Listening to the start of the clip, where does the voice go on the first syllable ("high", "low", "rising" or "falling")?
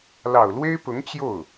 low